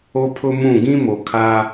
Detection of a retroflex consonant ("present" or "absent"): absent